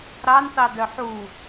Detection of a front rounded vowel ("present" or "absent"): present